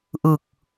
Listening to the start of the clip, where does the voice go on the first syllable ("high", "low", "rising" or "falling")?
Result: low